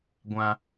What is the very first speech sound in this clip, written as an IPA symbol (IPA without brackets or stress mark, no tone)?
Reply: ɡʷ